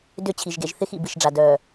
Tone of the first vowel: falling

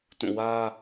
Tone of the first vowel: falling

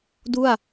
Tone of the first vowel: falling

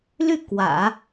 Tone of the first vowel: falling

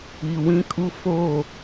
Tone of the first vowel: low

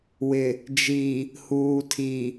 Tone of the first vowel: low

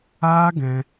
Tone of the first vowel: high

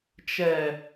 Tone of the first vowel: low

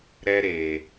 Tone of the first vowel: high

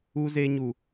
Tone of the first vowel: high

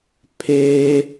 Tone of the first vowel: high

